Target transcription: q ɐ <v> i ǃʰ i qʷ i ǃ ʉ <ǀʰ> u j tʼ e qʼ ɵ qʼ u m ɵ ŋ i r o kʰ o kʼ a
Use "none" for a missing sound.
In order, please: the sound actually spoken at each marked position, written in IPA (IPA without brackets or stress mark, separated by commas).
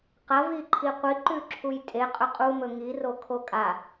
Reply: v, ǁʰ